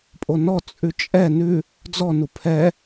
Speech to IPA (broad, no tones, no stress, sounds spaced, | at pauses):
pʼ o n ɔ t͡sʼ ʉ t͡ʃʼ ɛ n ʉ | d͡z ɔ n u pʰ ɛ